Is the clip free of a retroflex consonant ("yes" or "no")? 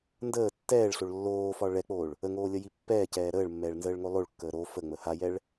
no